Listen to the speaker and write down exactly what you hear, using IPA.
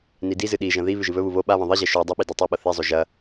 n i d i z ɨ ɗ i ʒ ɐ̃ ð i β ʉ ʒ ɨ β ɵ β u β o ɓ a β ɐ̃ ðˤ i ʑ e ʃ u dˤ ɐ ɓ i d u tˤ ɵ ɓ ɐ θ e zˤ o ʒ ɐ

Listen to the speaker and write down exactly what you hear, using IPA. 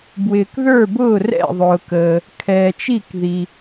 b w ɪː˩ k ð ə˞˥˩ b ʊː˥˩ r ɛ̰˥˩ ðˤ ʊː˩ k əː˩ | kʰ ɛː˩ t͡ʃ i˥˩ k ð i˩

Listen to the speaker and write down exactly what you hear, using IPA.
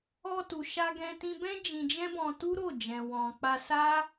ɔ˧ t u˨ ʃ a˧ ɡ ɛ̃˧ t ĩ˧ b ɛ̃˦ d͡ʒ ĩ˧ d͡ʒ ɛ̃˦ b ɔ̃˧ t u˦ ɾ o˦˨ d͡ʒ ɛ̃˨ w ɔ̃˨ k͡p a˧ s a˦

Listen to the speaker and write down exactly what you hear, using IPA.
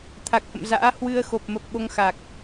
t̪ʰ a˨˩ k̚ h ə̰˧˨ m z a̰ː˧˥ h w ɨ˧ ə̯ x o˨˩ p̚ m ə˨˩ p̚ ɓ o˧ ŋ x a˨˩ k̚

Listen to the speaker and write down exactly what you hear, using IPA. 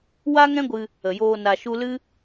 w a˦ ŋ ɛ̃˦ ɡʷ ɨ˧ | ə˨ j oː˧ n a˧ ʃ u˦ l ɨ˦

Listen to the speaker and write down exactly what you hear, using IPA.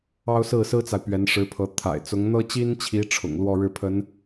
ɑ˥ ʊ̯ s ɹ̩˥˩ s ɹ̩˥ t͡s a˨ ɪ̯ p ɥ ɛ˧˥ n ʂ ɻ̩˧˥ pʰ ɤ˧˥ t̪ʰ a̰˨˩ ɪ̯ t͡s ʊ˧˥ ŋ n̪ ɤ˥ t͡ɕ i˥ n t͡ɕʰ i˧˥ ʈ͡ʂʰ ʊ̰˨˩ ŋ l w ɔ˥˧ ɻ ɻ̩˥˩ pʰ ə˧˥ n

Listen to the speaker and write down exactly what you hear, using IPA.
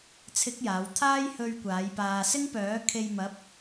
t͡sʰ ɪ˨˥ k̚ j aː˨˥ w t̪ʰ aː˥ j h ɵ˧ ɥ kʷ aː˨˥ j p aː˧ s ɪ˥ ŋ p œː˨˥ kʰ e˧ j m ɐ˨˥ p̚

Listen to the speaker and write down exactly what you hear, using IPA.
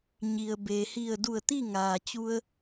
ɲ i˩ ə̯ b e˩ h i˧˩ ə̯ d u˧˩ ə̯ t̪ i˥˨ ŋ aː˩ t͡ɕ u˧ ə̯

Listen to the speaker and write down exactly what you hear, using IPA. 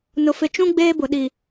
n ʊ˨ f ɪ˨ t͡ʃ ũ˦ ɡ͡b eː˦ b ʊ˨ ɗ i˨

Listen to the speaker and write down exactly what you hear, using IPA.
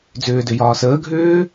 d͡z ʏː d ʏ j ɒː s əː ɡʱ ʏː

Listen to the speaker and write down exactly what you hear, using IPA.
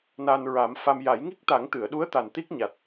n a˧ n ɹ a˨˩˦ m f a˧ m j a˨˩˦ j ŋ i˦˥ k̚ t̪ a˨˩˦ ŋ t̪ ɨ˨˩˨ ə̯ ɗ u˧˥ ə̯ t̪ a˨˩ n t̪ i˦˥ k̚ ɲ a˨˩ t̚

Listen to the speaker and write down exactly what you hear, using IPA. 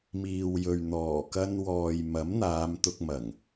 m iː˨ w j ɵ˨ ɥ n̪ ɔː˨˩ k ɐ˧ n w ɔː˨ j m ɐ˨˥ m n̪ aː˨˧ m t̪ ʊ˧ k̚ m ɐ˨˩ ŋ

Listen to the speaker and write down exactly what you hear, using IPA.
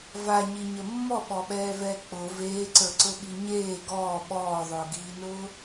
v a ɲ i ɲ ə mː ɔ ɓ ɔ ɓ ɛː v ɛː k͡p ʊ v eː ǀ ə˞ ǀ ʊ ɓ i ɲ eː ɡ ɔː ɓ ɔː ðˤ ʊː ɡ iː n ʊː

